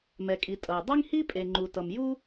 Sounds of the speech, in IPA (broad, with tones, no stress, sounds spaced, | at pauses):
m ɛ˩ kʼ i˩ tʼ ʌ˩ j dˤ i˥ ŋ h i˥ pʼ e˩ ŋ͡ǃ u˩ t ʌ˩ m j u˥